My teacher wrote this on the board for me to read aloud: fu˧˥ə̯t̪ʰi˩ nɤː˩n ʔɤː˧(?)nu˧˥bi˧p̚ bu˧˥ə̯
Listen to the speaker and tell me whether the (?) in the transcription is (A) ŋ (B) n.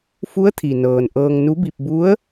A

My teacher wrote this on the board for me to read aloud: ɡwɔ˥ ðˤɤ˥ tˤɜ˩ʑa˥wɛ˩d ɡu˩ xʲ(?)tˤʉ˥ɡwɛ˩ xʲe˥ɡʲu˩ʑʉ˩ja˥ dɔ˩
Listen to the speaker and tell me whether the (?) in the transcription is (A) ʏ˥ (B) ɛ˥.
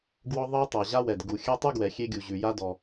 B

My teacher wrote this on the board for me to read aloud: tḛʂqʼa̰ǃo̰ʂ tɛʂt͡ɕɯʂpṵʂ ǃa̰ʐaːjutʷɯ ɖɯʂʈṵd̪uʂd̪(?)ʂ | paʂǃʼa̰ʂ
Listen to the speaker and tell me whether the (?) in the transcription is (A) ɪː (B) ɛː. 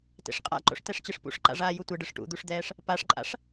B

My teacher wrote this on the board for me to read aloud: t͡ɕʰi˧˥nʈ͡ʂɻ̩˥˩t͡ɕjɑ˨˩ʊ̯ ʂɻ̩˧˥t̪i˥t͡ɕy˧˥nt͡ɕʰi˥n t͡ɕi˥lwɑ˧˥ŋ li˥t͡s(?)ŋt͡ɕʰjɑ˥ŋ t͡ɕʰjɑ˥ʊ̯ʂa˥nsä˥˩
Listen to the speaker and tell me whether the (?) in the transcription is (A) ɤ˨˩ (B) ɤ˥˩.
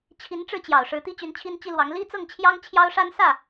B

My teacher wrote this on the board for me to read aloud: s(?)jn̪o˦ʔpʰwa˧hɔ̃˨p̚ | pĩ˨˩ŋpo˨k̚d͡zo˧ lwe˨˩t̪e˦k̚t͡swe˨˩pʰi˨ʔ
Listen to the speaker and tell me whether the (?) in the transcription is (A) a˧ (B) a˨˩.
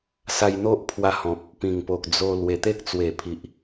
A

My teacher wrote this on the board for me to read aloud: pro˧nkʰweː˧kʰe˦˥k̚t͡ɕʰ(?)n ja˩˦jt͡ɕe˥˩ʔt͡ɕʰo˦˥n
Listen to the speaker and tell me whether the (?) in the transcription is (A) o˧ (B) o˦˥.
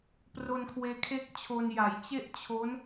A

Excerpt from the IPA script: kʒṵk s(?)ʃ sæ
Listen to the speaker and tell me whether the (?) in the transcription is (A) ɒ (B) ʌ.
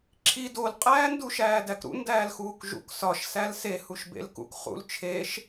A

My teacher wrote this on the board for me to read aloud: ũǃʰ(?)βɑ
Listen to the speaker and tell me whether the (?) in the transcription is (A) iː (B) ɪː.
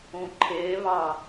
B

